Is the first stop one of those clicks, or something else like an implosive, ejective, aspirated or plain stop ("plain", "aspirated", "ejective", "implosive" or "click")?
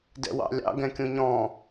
plain